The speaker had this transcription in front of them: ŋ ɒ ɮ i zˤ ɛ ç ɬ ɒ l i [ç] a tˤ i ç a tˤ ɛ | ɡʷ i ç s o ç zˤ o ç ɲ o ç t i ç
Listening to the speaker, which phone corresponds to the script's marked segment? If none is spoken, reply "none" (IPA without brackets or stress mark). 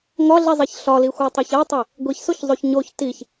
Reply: xʷ